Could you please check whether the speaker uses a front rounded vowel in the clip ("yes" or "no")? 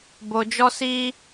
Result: no